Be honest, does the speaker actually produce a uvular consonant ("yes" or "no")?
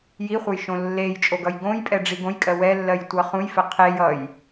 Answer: yes